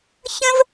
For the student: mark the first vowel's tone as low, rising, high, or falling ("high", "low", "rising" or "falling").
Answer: high